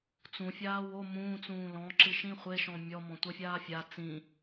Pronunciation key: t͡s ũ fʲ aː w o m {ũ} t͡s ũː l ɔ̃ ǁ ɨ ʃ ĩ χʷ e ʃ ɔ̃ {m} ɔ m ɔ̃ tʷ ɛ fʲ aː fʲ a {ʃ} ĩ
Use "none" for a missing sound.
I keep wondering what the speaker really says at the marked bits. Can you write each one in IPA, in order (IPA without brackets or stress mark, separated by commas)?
ũː, mʲ, t͡s